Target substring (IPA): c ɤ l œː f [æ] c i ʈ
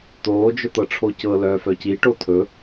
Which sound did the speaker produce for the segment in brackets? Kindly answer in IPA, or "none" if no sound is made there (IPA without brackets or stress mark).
œ